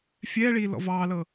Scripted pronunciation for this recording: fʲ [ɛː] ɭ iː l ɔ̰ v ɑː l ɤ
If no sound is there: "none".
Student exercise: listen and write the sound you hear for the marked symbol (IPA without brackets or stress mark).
ɛː